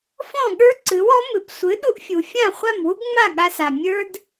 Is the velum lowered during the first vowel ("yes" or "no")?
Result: yes